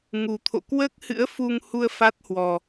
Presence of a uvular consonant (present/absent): absent